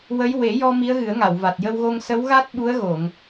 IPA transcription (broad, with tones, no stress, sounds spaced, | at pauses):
w ə˧˥ j w e˨˩˦ j ɔ˧ m i˧˥ ə̯ ɣ ɨ˨˩˦ ə̯ ŋ a˨˩˨ w v a˨˩ t̚ j ə˧ w ɣ o˧ ŋ s ə˧˥ w ɣ a˦˥ t̚ ɓ u˧˥ ə̯ ɣ o˨˩˨ ŋ